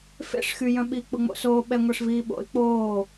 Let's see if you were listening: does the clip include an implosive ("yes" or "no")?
yes